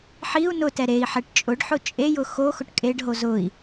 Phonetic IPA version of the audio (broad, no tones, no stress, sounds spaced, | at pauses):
ħ i u̯ n ʊ t ɛ ɾ e i̯ ħ ɛ ʈ t͡ʃʼ ʊ ɖ ħ ʊ t͡ʃʼ e j ʊ x o x ʊ ʈ kʼ e ɖ ɦ o z ʊ i̯